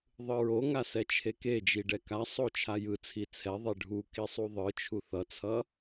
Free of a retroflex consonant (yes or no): no